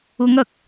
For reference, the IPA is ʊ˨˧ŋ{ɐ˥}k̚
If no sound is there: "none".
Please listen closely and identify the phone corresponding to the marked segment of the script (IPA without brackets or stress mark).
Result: ɐ˨